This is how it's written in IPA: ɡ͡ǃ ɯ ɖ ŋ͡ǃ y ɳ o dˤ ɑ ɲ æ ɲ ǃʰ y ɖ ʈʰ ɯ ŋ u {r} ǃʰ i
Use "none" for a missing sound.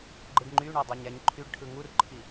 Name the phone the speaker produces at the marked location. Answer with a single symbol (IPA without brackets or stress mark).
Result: r